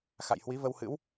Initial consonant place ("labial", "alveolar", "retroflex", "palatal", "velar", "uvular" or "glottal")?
velar